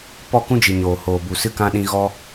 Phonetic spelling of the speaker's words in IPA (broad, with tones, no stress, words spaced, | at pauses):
pɔ˦˨kũ˦d͡ʒɨ˨ɲoː˨ hoː˨bu˨sɨ˧kã˧ ɗĩ˧ɣɔ˦